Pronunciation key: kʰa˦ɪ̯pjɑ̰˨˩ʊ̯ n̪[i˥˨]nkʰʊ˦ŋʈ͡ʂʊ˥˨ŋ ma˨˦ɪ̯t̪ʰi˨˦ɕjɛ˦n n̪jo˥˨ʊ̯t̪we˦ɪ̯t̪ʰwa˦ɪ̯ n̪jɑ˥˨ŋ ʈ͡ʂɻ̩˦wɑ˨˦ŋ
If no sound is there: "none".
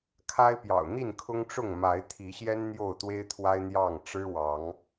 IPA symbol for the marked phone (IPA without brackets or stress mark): i˥˨